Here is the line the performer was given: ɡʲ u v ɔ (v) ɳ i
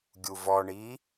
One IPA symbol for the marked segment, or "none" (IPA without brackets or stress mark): none